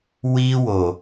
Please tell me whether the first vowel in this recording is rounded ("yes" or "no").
no